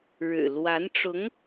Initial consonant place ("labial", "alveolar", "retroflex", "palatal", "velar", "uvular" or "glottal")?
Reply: retroflex